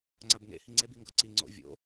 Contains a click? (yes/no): yes